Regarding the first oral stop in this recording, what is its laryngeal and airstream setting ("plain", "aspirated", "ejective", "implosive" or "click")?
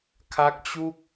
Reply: aspirated